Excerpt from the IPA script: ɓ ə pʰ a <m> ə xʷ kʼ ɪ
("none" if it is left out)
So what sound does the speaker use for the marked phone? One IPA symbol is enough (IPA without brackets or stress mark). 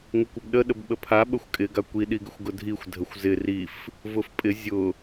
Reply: ɓ